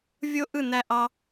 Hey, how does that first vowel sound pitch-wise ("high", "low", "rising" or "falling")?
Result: high